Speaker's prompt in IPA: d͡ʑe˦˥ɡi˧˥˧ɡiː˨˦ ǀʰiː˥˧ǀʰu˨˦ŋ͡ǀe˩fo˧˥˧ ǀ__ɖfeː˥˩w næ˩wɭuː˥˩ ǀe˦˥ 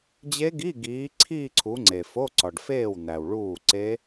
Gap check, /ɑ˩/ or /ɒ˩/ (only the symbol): ɒ˩